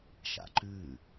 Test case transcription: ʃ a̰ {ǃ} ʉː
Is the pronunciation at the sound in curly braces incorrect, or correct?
correct